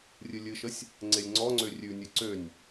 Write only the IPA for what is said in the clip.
rʲɨlʲɨʃəsʲ | ŋ͡ǀelʲŋ͡ǀɔŋ͡ǀø rʲʉnʲɨ ǀønʲ

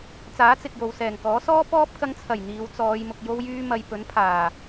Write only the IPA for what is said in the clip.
t͡saː˨˥t͡sɪ˨k̚ jo˨wsɛː˨˩ŋkɔː˨˥ sɔː˥pɔː˥p̚kɐ˧ŋt͡sʰɐ˨˩j n̪iː˨˧wt͡sɔː˨˧jmʊ˨k̚ jo˧wjyː˧mɐ˨j pɵ˨˥npʰaː˨˩

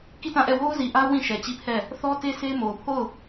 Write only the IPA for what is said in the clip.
ki˦˨tã˦˨ʔɛ˦˨ wo˦ʊ̯zi˨ʔa˦ʊ̯ wĩ˦˨ʃɛ˨t͡ɕi˦˨ pʰɛ˦˨ | θɔ˦te˦ se˦ mo˨ʊ̯pʰo˦˨ʊ̯

